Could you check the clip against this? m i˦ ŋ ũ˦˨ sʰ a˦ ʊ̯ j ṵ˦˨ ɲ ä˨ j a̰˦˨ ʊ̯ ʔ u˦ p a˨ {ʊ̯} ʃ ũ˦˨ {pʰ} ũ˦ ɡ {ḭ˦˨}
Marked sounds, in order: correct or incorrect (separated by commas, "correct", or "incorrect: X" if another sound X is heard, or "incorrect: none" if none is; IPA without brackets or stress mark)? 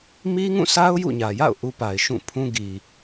incorrect: ɪ̯, correct, incorrect: i˨